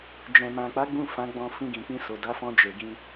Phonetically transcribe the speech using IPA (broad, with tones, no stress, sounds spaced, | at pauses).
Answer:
d͡ʒ ɛ̃˨ m ã˨ k͡p a˨˦ ɡ͡b ũ˦˨ f ã˨˦ ɡ͡b ɔ̃˧ f ĩ˧ ɡ ĩ˨ k͡p ĩ˧ s o˨ d a˨˦ f ɔ̃˧ d͡ʒ e˨ ɡ ĩ˧